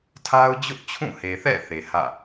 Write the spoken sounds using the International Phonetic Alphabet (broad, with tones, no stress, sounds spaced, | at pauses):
tʰ a˦ ʊ̯ d͡ʑ ʊ˦ ʔ t͡ɕʰ ũ˦˨ h e˨ θ ɛ̰˦˨ θ e˨ h ä̰˦˨